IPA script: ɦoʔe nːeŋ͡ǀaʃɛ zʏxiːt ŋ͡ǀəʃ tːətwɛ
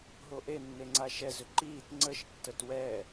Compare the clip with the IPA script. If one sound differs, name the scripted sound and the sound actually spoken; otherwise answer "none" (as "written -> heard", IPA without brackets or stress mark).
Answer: x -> ǃ